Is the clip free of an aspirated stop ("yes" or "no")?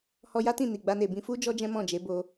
yes